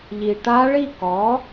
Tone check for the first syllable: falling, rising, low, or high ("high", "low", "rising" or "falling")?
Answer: low